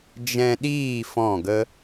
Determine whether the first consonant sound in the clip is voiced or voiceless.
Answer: voiced